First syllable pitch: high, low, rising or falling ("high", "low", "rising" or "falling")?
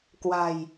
low